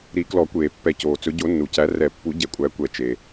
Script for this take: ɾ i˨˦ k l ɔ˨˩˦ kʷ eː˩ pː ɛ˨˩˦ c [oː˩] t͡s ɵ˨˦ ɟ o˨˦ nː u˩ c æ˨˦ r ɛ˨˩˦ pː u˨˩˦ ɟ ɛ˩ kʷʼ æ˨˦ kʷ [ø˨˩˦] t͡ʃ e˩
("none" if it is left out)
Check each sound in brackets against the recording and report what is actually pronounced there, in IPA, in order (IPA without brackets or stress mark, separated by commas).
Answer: oː˩, ɛ˨˩˦